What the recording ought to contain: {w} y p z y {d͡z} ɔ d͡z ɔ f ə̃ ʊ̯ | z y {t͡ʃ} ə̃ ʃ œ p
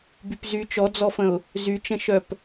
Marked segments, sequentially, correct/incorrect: incorrect, incorrect, correct

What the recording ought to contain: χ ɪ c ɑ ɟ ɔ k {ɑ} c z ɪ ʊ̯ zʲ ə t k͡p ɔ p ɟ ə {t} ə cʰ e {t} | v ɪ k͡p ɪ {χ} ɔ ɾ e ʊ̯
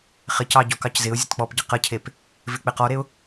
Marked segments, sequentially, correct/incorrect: correct, incorrect, incorrect, incorrect

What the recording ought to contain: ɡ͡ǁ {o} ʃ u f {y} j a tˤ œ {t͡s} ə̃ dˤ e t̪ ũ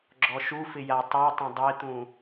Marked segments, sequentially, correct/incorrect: incorrect, incorrect, incorrect

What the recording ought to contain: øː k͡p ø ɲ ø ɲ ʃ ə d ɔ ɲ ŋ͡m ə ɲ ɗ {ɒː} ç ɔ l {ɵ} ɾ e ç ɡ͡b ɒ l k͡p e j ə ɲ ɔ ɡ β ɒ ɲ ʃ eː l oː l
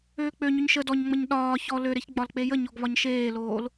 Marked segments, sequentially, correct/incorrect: correct, incorrect

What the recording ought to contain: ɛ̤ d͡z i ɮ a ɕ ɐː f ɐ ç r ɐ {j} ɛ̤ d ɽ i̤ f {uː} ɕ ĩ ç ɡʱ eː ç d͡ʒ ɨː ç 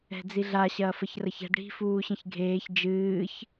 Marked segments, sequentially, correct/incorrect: incorrect, correct

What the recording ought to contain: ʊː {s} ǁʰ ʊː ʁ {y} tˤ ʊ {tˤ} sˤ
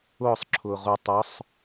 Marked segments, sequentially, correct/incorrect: incorrect, incorrect, incorrect

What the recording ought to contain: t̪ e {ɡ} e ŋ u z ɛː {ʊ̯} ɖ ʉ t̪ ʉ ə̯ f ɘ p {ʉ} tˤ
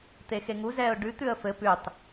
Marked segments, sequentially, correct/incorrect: incorrect, correct, correct

